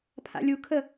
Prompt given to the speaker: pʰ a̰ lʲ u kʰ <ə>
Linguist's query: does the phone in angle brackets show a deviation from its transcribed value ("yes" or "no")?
no